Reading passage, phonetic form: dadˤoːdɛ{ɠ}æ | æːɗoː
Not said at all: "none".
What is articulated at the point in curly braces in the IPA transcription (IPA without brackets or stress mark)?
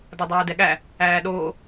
ɠ